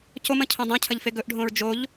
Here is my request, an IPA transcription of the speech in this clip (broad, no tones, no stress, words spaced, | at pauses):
comɐ̃ cʰõdˤõcʰɐʎ feɡɵʔɖʱõɹ d͡ʒoʎ